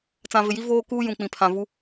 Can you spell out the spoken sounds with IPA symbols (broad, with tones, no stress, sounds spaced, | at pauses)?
t͡s ã˨ v ɪ˨ j i˦ v oː˦ k uː˦ j ũ˨ k͡p ĩ˨ pʰ ã˨ v u˦